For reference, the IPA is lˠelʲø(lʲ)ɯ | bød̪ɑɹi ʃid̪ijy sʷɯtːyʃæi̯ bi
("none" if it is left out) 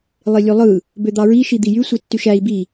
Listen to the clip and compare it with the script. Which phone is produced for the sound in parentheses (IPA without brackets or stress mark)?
lˠ